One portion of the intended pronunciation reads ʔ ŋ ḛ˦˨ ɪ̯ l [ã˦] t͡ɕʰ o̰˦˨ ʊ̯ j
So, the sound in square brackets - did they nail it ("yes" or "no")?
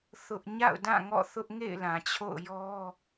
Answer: no